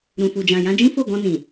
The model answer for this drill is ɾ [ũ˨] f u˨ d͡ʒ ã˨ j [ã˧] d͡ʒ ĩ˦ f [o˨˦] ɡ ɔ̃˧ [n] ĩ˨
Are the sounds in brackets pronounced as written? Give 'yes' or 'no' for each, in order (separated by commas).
yes, yes, no, yes